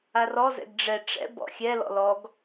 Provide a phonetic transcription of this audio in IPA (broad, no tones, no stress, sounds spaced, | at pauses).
a r ɔ z ɛ̰ ɡ ɖ͡ʐ ɛ ʈ͡ʂ ɛ̰ b ɔ̰ xʲ ɛ l ɔ̰ l ɔ ɡ